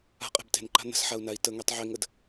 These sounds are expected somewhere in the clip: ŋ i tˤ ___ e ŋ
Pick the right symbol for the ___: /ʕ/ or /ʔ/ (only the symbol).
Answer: ʕ